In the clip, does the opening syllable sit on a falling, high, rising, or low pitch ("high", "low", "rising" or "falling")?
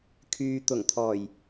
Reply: low